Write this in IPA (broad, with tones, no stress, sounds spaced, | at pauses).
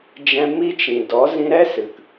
d͡ʒ ɛ̃˧ m i˦ t͡ʃ ĩ˨ d ɔ˨˦ z ĩ˧ ɾ ɛ˦ s ɨ˨ k